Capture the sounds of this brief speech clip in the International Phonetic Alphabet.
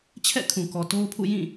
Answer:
t͡ɕʰ ɛ̰˦˨ kʰ ũ˨ k ɔ˨ t o˦ ʊ̯ pʰ ṵ˦˨ j ĩ˦˨

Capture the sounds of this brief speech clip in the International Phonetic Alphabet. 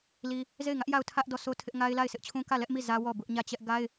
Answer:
l i˦ | z e˦˨ ɪ̯ ŋ ä˦ ʔ j a˦˨ ʊ̯ tʰ ä˦ ʔ d ɔ˦˨ s o˦ tʰ ɪ˦ ʔ ŋ a˦ ɪ̯ l a˦˨ ɪ̯ sʰ ɪ˦ ʔ t͡ɕʰ ũ˦ k ä˦˨ l ɛ˦ ʔ m i˦˨ z ä˦ w ɔ˦˨ b ʊ˦ ʔ ɲ ä˦˨ t͡ɕ ɛ˦ ʔ ɡ a˦ ɪ̯

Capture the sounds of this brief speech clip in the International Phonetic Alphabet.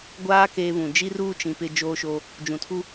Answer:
ɡʷ aː˦ k eː˦ β ũ˨ d͡ʒ i˦ r uː˦ t͡ʃ ĩ˨ p ɪ˦ d͡ʒ oː˦ ʃ oː˦ | d͡ʒ ũ˨ tʰ u˦

